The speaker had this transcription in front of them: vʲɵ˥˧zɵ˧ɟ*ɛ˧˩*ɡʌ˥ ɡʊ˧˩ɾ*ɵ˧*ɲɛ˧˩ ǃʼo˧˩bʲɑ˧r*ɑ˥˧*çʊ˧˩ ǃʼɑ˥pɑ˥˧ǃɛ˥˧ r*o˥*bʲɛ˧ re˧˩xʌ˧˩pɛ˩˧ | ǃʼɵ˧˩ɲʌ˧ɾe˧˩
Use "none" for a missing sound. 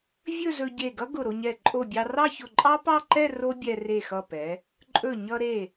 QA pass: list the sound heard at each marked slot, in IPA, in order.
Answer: e˧˩, o˧, ɑ˥˧, o˥

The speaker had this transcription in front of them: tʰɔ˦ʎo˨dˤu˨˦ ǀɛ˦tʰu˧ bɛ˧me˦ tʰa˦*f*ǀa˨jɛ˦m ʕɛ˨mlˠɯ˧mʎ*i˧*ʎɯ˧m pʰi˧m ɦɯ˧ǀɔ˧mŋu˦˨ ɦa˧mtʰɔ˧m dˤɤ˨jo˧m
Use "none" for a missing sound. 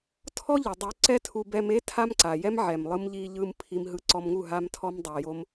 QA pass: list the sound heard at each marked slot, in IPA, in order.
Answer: m, i˧

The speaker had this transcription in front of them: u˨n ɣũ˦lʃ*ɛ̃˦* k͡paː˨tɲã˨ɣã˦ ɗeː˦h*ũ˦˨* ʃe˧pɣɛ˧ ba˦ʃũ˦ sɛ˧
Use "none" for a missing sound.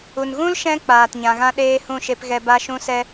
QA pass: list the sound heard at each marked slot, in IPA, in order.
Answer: ɛ̃˧, ũ˦˨

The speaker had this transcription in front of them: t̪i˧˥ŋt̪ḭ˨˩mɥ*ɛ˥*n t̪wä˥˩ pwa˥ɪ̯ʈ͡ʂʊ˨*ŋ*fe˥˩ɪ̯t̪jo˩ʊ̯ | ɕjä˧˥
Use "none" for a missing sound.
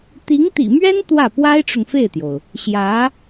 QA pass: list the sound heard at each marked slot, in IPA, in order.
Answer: ɛ˥, ŋ

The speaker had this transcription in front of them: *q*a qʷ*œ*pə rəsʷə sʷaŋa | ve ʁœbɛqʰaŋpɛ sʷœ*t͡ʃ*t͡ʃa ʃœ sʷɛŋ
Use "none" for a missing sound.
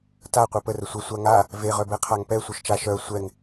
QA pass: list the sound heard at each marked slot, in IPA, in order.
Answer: t, ɛ, ʃ

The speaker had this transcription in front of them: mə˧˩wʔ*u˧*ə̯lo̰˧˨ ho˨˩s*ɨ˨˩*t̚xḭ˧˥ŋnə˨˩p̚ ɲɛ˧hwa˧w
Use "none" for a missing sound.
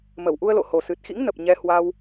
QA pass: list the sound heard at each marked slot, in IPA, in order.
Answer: u˧, ɨ˨˩

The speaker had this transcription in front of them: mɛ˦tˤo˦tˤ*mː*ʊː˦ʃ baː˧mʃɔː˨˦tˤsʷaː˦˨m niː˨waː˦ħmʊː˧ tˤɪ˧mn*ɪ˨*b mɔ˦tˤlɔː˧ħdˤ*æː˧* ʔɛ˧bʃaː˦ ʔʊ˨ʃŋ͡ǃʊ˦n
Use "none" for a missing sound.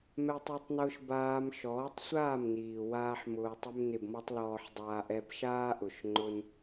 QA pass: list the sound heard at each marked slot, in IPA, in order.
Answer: n, ɪ˨, aː˧

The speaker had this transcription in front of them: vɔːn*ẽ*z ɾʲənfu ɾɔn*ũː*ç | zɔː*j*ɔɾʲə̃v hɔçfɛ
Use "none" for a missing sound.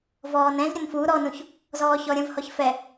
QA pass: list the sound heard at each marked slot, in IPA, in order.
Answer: ɛ̃, ũ, ç

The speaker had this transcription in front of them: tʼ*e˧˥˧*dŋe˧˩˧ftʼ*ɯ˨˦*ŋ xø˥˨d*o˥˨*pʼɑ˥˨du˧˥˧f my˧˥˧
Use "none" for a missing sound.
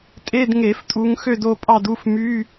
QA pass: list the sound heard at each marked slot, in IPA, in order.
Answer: e˧˥˧, u˨˦, o˥˨

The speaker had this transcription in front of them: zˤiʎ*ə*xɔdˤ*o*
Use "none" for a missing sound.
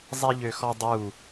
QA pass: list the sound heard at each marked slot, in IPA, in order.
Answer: ø, u

